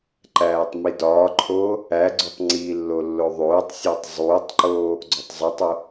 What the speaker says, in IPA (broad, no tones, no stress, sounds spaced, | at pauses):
ǃ æː tˤ m i d ɒː ǃʰ oː | æ ɡ͡ǀ u tˤ ŋ͡ǀ i lː o lː o ðˤ oː tˤ sʲ æ tˤ zˤ uː tˤ ǃ oː | ɡ͡ǀ o tˤ zˤ i tˤ o